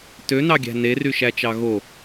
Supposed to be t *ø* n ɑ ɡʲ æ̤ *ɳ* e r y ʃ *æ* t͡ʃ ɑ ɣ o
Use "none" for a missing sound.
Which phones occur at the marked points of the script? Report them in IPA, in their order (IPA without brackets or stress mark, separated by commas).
ø, n, æ